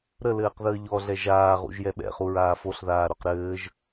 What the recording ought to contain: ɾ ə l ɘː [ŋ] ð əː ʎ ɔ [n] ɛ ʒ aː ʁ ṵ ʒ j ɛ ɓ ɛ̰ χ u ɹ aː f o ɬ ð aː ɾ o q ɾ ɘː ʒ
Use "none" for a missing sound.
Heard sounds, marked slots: q, ɮ

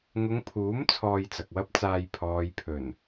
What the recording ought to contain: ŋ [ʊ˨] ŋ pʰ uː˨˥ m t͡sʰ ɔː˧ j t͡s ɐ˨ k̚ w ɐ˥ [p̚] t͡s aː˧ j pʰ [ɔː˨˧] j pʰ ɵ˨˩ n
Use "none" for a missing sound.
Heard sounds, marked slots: ʊ˨˧, p̚, ɔː˨

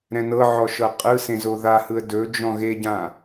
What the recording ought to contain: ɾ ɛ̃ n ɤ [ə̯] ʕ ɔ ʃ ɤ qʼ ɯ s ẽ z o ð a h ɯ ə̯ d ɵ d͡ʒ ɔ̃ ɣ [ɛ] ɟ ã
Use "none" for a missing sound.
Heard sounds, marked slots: none, e

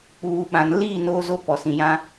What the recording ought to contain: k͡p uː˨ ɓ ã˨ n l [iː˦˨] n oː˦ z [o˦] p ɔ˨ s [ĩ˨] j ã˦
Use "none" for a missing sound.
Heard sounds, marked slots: iː˦˨, o˦, ĩ˨

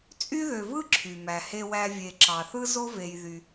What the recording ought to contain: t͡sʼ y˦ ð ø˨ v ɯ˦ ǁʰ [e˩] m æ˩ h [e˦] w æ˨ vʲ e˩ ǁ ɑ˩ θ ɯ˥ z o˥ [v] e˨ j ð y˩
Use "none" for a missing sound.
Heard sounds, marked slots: y˩, e˨, v

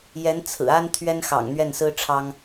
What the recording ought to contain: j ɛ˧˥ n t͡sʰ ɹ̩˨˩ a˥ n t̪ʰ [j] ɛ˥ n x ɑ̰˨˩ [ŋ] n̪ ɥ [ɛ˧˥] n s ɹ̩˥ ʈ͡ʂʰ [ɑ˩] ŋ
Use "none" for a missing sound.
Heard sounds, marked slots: ɥ, ŋ, ɛ˥˩, ɑ˥

